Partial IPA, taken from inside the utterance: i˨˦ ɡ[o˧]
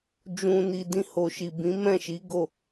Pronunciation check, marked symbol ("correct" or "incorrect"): incorrect